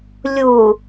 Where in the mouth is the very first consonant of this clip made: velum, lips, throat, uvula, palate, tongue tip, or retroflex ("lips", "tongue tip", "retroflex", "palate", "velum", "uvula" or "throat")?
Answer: tongue tip